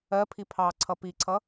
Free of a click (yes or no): no